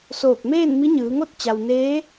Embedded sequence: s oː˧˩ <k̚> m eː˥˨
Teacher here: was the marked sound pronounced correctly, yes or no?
yes